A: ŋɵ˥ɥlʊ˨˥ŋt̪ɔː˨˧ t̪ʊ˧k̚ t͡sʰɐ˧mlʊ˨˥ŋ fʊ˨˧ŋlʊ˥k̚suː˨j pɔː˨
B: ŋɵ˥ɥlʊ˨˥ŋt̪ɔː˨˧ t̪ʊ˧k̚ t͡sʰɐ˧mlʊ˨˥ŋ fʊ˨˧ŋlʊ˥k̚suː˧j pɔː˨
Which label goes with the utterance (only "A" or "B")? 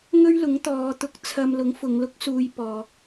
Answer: B